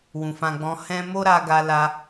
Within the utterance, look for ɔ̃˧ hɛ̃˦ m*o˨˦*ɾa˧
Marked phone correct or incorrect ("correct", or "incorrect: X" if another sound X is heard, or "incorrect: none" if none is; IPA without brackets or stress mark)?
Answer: incorrect: o˦